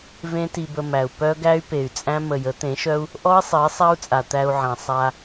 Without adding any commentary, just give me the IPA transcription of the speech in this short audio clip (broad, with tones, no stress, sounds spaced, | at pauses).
v ẽ˦ t i˧ b ə˧ m æ˨ u̯ p œ˦ ɡ æ˦ y̯ p e˨ y̯ t͡sʼ æ̃˦ m ə˨ j ə˨˦ t̪ ẽ˨˦ ʃ œ˦ u̯ | ʔ ɔ˦ i̯ sˤ e˨˦ sˤ æ˦ u̯ t͡sʼ a˨ t̪ æ˧ u̯ ʕ æ̃˨ sˤ a˧